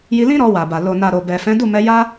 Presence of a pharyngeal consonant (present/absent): absent